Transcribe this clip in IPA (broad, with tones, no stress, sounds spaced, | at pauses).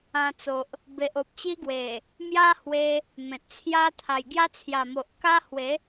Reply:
ã˧ t͡s o˨ ʔ | b e˨ ʔ o˨ p̚ t͡ɕ i˦ ɡ w e˨˩ | m j a˦ h w e˧ | m ẽ˨ t̚ t͡sʰ j a˦ t̪ʰ a˨˩ j ɡ j a˦ t͡sʰ j a˨˩ m o˨ ʔ k a˦ h w e˨˦